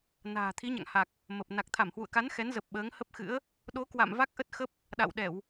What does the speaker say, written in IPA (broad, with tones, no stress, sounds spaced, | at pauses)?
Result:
n a̤ː˨˩ t̪ʰ i˨˦ ɲ a̰˧˨ ŋ h a˨˩ k̚ | m ə˨˩ p̚ n a˨˩ k̚ t̪ʰ a˧˩ m h w ṵ˧˨ ə̯ k a˨˦ n x ɛ˨˦ n z ə˨˩ p̚ ɓ əː˨˦ ŋ h ə˦˥ p̚ x ɨ̰˧˥ ə̯ | ɗ o˨˦ k w a̰˧˨ m v a˦˥ k̚ ʔ ə˦˥ t̚ x ə˦˥ p̚ | ɗ a̰˧˨ w ɗ ɛ˧˩˨ w